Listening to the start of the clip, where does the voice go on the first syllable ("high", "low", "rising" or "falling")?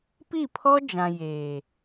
falling